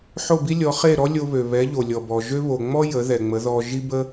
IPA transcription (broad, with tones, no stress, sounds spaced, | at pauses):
ħ o˥˩ b i˥ lʲ ɔ˩˥ χ e˥˩ ɾ ɔ˥ lʲ o˧ β ø˩ β ɛ˩˥ ʎ o˩ lʲ ɔ˩ b ɔ˩ ʒ ø˥ β o˩ ŋ͡m ɔ˥ j ə˩˥ ð ɛ˩ ŋ͡m ə˩˥ ð ɔ˧ ʒ i˥ b ə˥